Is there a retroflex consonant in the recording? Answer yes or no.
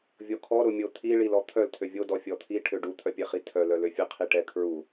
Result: yes